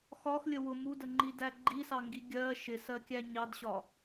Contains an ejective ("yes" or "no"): no